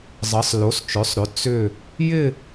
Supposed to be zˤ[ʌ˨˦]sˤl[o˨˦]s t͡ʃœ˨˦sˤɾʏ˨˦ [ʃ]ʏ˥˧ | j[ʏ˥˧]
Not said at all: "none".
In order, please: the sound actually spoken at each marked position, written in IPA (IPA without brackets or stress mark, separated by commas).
ʌ˨˦, o˨˦, t͡s, ɪ˥˧